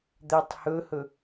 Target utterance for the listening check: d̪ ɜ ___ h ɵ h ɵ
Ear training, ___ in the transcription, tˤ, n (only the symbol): tˤ